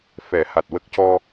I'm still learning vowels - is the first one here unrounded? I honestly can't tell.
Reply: yes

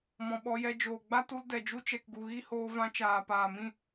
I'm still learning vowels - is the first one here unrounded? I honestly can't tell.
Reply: no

